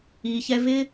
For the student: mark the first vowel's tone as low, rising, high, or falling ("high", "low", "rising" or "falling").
low